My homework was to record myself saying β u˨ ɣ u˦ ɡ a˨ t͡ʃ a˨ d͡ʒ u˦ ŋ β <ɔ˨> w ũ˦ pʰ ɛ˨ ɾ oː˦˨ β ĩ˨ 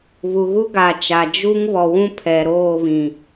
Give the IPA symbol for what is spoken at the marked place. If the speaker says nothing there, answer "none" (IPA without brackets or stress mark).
ɔ˨